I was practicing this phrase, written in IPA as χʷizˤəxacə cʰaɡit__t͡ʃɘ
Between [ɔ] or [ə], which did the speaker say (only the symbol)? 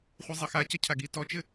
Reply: ɔ